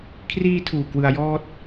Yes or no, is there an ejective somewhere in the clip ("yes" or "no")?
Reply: no